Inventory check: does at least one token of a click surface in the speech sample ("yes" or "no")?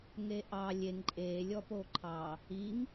yes